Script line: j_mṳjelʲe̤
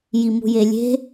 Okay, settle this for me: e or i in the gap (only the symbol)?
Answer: i